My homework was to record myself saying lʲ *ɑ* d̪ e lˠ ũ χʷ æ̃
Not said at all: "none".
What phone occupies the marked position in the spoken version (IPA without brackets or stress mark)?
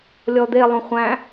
ɔ